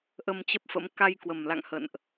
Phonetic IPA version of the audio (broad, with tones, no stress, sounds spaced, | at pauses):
ʔ ə˧ m t͡ɕ ə˦˥ p̚ f ə̰˧˥ m k a˧ j k w ə˨˩ m l a̰˧˨ ŋ h ə̰˧˨ n ʔ